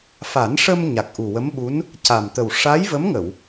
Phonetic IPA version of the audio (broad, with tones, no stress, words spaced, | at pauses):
fa˨˩˦nʂə˧m ɲa˨˩k̚ʔu˨˩wə˧˥mɓu˧˥n | ca˨˩mt̪ə˨˩w ʂa˧˥jvə˧˥mŋə˨˩˨w